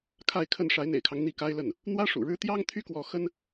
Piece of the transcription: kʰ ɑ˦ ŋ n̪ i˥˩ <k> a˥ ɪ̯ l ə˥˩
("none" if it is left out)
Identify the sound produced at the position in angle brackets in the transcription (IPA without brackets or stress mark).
k